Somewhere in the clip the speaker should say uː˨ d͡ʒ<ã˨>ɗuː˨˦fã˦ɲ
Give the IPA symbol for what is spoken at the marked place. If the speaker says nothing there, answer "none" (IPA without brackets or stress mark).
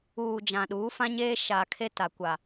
ã˨